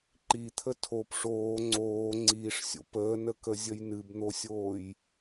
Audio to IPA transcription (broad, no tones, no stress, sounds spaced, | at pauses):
ǃ i t̪ʰ ə tʰ o p ʂ oː ŋ͡ǀ oː ŋ͡ǀ iː ʂ sʲ o̰ p əː n ə k ə zʲ ə j n ɨ b n̪ o sʲ oː j